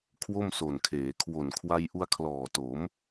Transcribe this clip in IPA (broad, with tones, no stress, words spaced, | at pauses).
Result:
kʰwo˥˩mso˨˩nkʰeː˩˦ kʰwo˨˩nkʰwa˧j ʔu˧a̯kʰlɔː˨˩to˩˦m